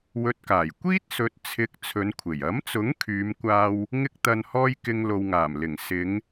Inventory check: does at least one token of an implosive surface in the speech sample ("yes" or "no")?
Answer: no